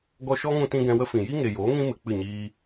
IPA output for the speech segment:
ɡ ɔ˧ ʃ ɔ˦ ŋ ũ˧ t ĩ˧ ɡ ɛ̃˧ w ə˦ f ĩ˨ j i˦ ŋ e˨ j oː˨˦ ŋ ĩ˦ m ɨ˨ k͡p ɨ˦˨ ɲ iː˦

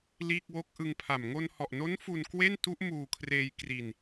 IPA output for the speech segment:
l iː˥˩ k̚ w o˥˩ k̚ ʔ ɯ˧ ŋ pʰ a˨˩ m ŋ o˧ n h ɔ˨˩ ʔ n o˦˥ n f u˧ n k w e˥˩ n t u˦˥ ʔ m uː˧ kʰ r eː˧ j k r i˧ n

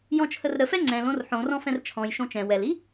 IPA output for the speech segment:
j ɔ̃ t͡ʃʰ ə r ɾ ə f ɛ ŋ͡ǀ ɛ̃ l õ r ħ õ r ɔ̃ f ɛ̃ r t͡ʃʰ ɔ̃ j ʃ õ t͡ʃ ɛ̃ w ɛ l i

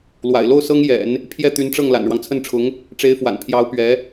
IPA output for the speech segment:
l w a̰˨˩ ɪ̯ l o˥˩ ʊ̯ s ɤ˥ ŋ j ɛ̰˨˩˦ n | pʰ j ɛ˥˩ t̪ y˧˥ n ʈ͡ʂ ɤ˥˩ ŋ l a̰˨˩ n ɻ w ɑ˦ ŋ t͡sʰ ə˥˩ n ʈ͡ʂʰ ʊ˧˥ ŋ | ʈ͡ʂ e˧˥ ɪ̯ f w a̰˨˩ n pʰ j ɑ˧˥ ʊ̯ p ɥ ɛ˧˥

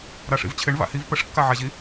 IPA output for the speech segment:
ɾ a ʂ ḭ v t͡ɕʰ ɪ ɳ v a̰ h i v p ə ʂ kː a ʕ a ʑ i

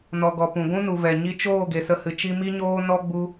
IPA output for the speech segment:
n ɔ˨ ɡ ɔ˨ p ũ˨ ɡʷ ũ˦ n u˨ v ɛ˨ ɲ i˧ t͡ʃ oː˦˨ ɡ e˧ s ə˦ h ɨ˧ t͡ʃ i˧ m i˦ ɲ oː˦ n ɔ˦ ɡ͡b u˦

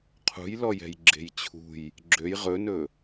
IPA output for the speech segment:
qʰ ṳ j l ɔ j ɛ̤ j ɡ͡ǁ e̤ j t͡ɕʰ ṳ j | ɡ͡ǁ ø j ʁ ɵ n ɵ

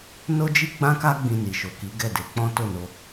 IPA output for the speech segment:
n o˦ d͡ʒ i˦ ɡ͡b ã˦ k a˦ ɡ͡b ĩ˧ n i˨ ʃ o˨ k i˨˦ ɡ ɛ˦˨ d e˨˦ k͡p ɔ̃˦ t o˦˨ n o˧

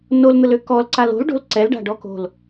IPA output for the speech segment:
n o l n̪ ə l ø k ɔ l ǀ a l o̤ l ɖ o̤ l ǀ ɛ l ɖ a̤ ɖ ɔ k o̤ l

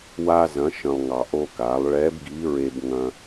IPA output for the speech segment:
w a˧ z ɐ̃˩˧ ʃ ə̃˩ lˠ ŋ ɑ˩ ʔ o˧ k a˩˧ lˠ ɭ ɛ˧˥ b ɡ i˧˥ ɹ e˧ b ŋ ɐ̃˧

